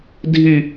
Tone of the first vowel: high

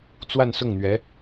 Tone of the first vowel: falling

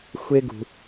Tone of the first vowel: high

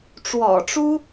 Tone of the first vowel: low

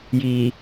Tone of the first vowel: low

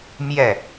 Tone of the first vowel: falling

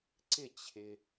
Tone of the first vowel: falling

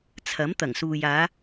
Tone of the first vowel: rising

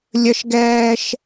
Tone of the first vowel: high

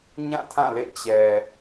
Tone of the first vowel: falling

